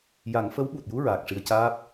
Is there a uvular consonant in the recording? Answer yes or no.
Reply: no